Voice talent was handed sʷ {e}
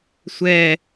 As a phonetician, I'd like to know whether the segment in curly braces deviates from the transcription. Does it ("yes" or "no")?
yes